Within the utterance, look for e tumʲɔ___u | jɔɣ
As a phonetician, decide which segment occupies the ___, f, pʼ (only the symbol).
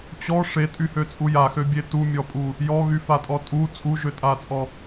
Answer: pʼ